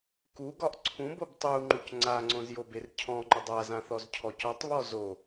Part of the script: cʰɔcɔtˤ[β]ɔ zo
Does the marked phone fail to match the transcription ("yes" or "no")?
no